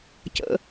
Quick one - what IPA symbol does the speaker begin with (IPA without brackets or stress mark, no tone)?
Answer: c